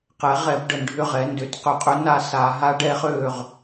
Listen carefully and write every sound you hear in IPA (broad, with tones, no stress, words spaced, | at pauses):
qɛ˩˥ ʁɛ˧˩˧b ɖə˧˩˧nɖʱʏ˦˨ ʁɛ˩˥ndʏ˧˩˧t qʏ˧˩˧qʼʏ˧˥ na˦˨ sa˧˩˧ɦa˧˥ɖɛ˧˥ χø˦˨ʁ